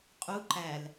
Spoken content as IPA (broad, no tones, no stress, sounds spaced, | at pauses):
qʼ u ǃ æ l